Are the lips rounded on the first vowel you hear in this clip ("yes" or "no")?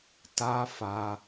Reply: no